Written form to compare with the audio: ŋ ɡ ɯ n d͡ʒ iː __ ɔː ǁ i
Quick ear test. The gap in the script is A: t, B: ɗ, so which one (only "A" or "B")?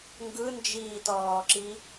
A